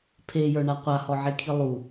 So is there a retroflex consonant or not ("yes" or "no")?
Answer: yes